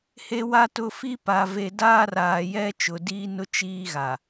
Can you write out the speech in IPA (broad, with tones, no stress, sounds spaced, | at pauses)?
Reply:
h e˨ w a˨ t ʊ˨ f i˦ p a˨ v e˨ d aː˦ r aː˨ j ɛ˦ t͡ʃ ʊ˨ d iː˦ n ʊ˦ t͡ʃ iː˦ ɣ a˨